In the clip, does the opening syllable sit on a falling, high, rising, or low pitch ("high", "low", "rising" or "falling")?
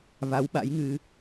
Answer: rising